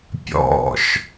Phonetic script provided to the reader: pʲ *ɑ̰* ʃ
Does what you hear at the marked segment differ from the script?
yes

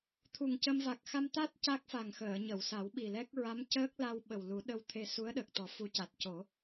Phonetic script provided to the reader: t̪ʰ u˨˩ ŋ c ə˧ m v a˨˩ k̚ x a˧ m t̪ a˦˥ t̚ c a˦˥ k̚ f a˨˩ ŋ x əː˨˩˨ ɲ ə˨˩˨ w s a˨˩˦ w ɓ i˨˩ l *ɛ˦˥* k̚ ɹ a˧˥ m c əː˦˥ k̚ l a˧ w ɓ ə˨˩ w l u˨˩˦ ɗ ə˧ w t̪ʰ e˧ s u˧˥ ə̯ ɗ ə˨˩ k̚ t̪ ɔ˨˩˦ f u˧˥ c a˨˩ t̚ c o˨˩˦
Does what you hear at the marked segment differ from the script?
no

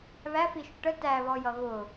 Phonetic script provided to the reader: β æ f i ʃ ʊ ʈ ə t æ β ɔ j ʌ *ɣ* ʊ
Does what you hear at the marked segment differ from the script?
no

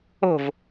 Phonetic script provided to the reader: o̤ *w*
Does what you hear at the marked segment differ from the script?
yes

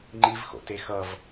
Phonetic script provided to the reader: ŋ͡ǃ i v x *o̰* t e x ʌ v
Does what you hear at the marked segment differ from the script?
no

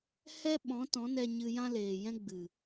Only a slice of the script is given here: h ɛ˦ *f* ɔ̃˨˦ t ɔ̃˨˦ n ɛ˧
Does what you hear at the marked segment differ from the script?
yes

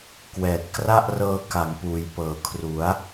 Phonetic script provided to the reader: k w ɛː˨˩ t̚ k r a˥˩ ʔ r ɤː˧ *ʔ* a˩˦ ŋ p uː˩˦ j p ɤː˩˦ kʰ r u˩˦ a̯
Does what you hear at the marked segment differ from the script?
yes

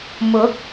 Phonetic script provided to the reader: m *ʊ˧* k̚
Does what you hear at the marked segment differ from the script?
yes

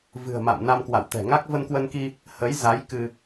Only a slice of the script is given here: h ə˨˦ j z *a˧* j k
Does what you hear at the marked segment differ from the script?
yes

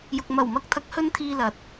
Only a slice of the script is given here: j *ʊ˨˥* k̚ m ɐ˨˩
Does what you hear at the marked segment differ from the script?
yes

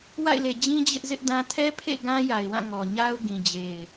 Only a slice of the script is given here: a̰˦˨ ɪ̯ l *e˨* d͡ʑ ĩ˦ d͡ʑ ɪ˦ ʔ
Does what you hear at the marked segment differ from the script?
no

